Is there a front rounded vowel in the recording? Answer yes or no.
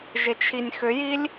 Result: yes